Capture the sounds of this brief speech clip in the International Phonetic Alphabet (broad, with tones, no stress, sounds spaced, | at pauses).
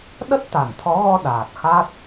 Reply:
ɗ ə˦˥ t̚ t̪ a˧˩ n t̪ʰ ɔ˨˦ ɣ ɔ˧ ɗ aː˨˩ t̚ x a˦˥ t̚